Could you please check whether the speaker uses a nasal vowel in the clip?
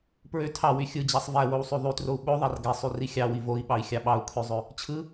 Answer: no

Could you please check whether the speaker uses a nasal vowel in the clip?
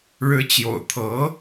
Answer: no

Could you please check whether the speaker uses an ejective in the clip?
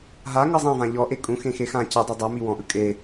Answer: yes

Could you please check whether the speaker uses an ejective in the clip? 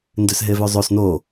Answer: no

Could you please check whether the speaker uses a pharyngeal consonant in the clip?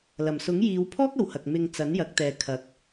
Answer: no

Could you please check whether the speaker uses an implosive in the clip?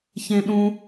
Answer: yes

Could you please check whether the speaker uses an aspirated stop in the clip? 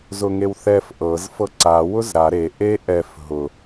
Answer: no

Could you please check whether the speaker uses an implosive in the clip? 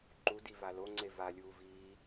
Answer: no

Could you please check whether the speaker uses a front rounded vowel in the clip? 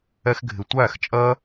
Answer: no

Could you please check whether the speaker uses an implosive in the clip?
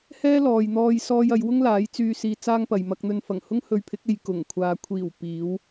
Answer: no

